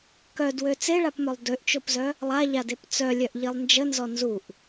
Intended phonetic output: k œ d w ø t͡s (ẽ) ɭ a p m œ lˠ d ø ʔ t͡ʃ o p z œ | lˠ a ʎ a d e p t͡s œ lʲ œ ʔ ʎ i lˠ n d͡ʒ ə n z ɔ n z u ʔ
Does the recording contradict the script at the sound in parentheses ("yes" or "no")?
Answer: yes